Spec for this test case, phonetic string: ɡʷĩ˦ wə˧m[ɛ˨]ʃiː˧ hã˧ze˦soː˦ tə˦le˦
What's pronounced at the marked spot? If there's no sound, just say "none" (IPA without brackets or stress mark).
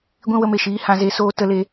e˨